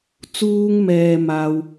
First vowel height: high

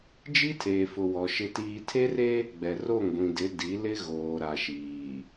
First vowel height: high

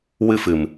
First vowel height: high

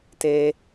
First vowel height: mid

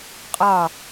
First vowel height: low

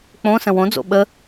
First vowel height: mid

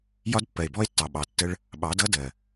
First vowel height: low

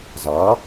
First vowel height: low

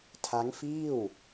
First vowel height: low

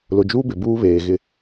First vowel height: high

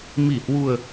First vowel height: high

